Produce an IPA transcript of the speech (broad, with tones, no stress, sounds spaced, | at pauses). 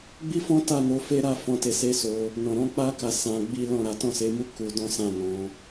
ɡ͡b i˦ f ɔ̃˦ t a˦˨ n o˧ f e˦ ɾ a˦ f ɔ̃˦˨ t e˧ s e˦ s o˧ | n ɔ̃˨ ɾ ɔ̃˨˦ k͡p a˦ k a˧ s ã˧ ɡ͡b i˦ l ɔ̃˦˨ ɾ a˨˦ t ɔ̃˦˨ s e˨˦ m u˦ k u˧ d ɔ̃˦ s ã˦˨ n ɔ̃˨˦